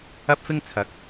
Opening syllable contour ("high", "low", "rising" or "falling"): high